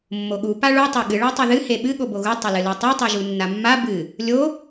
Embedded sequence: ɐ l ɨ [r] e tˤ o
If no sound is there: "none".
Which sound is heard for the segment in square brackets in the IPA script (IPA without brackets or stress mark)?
l